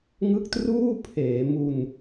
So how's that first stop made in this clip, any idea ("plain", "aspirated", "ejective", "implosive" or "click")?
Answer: plain